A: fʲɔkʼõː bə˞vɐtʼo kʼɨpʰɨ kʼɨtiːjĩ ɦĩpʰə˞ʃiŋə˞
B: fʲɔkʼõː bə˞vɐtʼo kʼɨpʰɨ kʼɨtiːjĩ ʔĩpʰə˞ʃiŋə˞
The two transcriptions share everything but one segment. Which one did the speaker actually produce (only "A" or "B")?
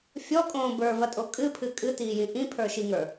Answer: B